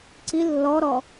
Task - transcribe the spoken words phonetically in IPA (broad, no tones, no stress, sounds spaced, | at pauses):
ǀ i lː ɔ ɾ ɔ